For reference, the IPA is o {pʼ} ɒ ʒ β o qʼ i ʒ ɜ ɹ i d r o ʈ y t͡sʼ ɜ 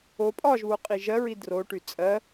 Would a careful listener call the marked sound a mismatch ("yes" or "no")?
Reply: no